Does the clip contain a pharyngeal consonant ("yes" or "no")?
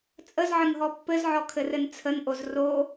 yes